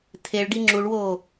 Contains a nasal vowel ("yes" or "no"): no